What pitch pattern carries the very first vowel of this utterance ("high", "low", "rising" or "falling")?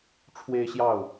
high